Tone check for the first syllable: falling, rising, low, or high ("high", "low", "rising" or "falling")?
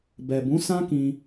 low